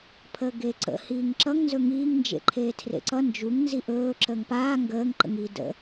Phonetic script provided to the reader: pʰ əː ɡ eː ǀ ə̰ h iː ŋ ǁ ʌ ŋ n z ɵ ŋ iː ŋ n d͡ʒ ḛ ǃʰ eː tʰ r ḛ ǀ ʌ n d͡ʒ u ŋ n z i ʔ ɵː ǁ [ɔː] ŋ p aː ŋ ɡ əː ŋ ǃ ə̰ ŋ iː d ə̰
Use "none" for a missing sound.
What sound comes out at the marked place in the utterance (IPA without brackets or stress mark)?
əː